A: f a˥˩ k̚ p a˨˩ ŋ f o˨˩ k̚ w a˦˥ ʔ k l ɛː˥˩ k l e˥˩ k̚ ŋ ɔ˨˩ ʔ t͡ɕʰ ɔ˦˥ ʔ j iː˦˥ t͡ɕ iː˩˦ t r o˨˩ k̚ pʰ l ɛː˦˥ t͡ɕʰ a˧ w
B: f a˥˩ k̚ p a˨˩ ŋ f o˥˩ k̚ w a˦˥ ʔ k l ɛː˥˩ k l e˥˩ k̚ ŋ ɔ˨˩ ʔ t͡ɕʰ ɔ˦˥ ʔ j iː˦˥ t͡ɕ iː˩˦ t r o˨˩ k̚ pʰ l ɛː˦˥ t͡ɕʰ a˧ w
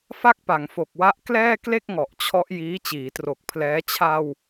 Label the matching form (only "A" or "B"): A